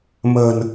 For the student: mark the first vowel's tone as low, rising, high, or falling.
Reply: low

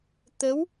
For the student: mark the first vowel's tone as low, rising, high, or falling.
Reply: rising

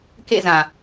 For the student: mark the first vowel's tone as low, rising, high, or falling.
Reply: falling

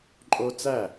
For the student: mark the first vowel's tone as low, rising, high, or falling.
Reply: high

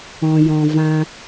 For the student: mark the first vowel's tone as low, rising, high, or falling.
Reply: low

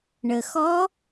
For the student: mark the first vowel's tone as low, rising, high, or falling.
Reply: low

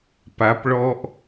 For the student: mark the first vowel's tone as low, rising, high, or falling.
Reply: rising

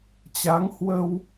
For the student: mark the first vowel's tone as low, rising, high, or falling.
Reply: rising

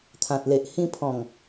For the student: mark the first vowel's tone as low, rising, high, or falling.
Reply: low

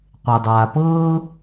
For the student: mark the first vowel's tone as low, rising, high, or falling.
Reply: low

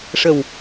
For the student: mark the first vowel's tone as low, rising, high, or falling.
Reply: low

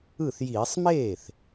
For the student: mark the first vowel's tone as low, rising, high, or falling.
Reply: falling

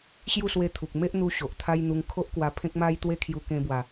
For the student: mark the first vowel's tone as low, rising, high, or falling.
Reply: falling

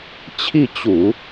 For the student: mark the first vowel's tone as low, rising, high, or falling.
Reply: falling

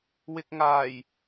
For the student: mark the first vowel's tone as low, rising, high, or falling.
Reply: low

